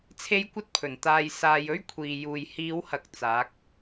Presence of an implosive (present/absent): absent